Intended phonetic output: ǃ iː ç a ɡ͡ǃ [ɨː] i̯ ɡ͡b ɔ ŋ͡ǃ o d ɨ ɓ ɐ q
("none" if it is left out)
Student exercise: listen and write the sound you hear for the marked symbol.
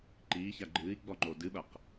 ɨː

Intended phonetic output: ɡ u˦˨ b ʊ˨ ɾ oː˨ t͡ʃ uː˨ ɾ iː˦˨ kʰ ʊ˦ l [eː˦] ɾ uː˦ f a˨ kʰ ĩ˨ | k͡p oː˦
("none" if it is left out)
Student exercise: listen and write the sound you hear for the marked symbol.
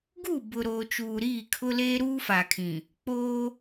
eː˦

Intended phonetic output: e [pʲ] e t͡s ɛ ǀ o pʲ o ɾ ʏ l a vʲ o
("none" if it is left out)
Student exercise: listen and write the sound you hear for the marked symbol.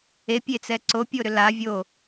pʲ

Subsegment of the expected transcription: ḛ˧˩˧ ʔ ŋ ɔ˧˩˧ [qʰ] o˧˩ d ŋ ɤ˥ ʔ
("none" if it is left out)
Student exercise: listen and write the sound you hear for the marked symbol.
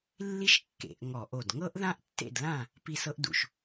ʔ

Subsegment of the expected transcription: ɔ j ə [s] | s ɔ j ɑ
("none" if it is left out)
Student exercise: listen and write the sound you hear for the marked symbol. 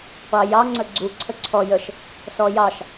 ʃ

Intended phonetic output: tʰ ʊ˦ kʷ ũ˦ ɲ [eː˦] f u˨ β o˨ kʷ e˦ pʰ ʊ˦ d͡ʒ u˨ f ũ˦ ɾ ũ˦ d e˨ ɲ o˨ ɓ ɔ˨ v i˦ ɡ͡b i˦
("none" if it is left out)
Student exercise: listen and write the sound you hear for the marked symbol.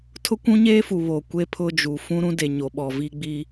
eː˦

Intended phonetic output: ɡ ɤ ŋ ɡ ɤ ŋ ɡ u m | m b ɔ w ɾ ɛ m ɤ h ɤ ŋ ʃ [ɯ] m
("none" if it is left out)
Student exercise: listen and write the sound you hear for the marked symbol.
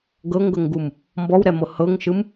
ɯ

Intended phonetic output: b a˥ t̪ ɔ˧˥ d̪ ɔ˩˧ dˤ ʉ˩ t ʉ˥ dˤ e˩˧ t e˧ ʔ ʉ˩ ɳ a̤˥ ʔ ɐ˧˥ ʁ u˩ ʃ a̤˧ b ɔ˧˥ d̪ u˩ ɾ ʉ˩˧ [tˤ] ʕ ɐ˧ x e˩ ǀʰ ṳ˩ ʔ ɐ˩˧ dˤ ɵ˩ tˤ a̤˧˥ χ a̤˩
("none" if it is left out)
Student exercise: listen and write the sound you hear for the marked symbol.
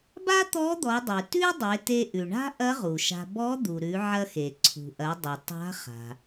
none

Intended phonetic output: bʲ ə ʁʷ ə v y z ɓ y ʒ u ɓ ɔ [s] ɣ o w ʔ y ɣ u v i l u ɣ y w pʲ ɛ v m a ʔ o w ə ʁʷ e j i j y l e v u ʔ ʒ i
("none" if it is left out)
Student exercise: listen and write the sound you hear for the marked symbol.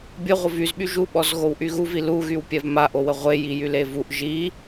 z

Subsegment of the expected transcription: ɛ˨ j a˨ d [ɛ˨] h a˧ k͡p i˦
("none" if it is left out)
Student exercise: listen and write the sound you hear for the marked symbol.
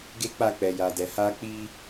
ɛ˨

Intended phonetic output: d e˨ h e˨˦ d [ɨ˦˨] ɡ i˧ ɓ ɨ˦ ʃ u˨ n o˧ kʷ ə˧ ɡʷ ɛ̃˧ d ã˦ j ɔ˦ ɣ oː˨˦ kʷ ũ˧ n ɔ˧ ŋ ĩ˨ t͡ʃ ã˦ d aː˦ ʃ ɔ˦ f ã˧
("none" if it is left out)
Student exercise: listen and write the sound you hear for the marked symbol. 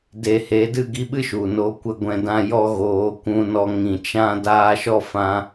ɨ˦˨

